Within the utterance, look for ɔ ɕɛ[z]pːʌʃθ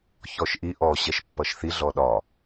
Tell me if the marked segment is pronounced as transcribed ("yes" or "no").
no